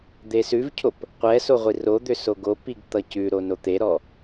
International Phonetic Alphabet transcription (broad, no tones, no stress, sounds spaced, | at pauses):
d̪ e s ʉ v cʰ o p | qʷ ɛ s o ʁʷ i r o d̪ ʏ s o ɡ o p i ɡ t̪ ʌ c ʉ ɾ o n o t̪ e ɾ ɔ